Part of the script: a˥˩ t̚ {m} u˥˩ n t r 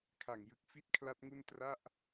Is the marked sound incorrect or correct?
incorrect